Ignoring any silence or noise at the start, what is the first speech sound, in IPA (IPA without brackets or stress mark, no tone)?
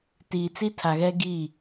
t